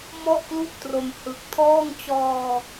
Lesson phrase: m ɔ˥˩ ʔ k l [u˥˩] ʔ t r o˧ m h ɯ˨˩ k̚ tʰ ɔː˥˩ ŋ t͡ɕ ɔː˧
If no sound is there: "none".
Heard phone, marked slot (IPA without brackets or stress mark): u˥˩